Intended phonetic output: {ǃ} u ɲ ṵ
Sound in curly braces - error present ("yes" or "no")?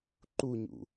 no